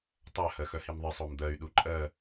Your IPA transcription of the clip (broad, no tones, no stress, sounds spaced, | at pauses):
tˤ œ h ɜ x œ h i m ðˤ ɪ sˤ o m d̪ ɜ y̯ ɗ u ǃʼ ɜ